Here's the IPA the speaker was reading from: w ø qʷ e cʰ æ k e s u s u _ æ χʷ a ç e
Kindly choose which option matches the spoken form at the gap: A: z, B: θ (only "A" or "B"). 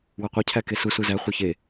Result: A